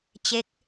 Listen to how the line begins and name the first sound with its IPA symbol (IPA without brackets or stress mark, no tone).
t͡ɕ